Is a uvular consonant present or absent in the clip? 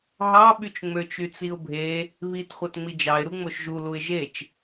present